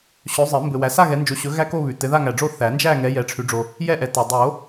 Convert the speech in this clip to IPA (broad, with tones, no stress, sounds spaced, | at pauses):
ɕ ɵ˨˦ zˤ ɘ˨˩˦ m b ɘ˨ w æ˨ s a˥˧ ɣ ɛ˨˦ n d͡ʒ o˨˦ ɕ ɵ˨˦ ɣ æ˥˧ k o˥˧ β ʉ˨ t ɘ˨˦ ð a˥˧ ŋ æ˨ ɖ͡ʐ o˥˧ θ æ˨˩˦ n d͡ʒ æ˥˧ ŋ ɛ˨˦ j ɛ˨ ʈ͡ʂʰ ʉ˨˩˦ ɖ͡ʐ o˨ | j ɛ˥˧ ʔ ɛ˨ t a˨ dˤ o˨˩˦